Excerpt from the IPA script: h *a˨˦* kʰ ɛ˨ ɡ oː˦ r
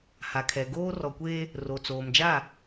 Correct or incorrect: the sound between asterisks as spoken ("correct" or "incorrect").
incorrect